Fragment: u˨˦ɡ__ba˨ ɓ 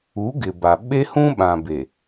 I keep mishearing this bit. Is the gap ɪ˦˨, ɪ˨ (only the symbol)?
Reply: ɪ˨